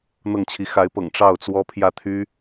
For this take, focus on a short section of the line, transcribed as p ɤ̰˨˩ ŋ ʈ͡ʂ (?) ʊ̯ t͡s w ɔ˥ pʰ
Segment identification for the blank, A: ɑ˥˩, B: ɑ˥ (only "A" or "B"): A